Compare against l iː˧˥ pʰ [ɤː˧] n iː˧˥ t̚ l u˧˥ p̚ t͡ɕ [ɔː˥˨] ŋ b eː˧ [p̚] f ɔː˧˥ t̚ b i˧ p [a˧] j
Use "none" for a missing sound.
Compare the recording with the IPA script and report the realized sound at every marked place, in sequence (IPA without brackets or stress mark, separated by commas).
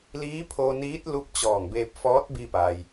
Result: oː˧, ɔː˧˩, p̚, a˩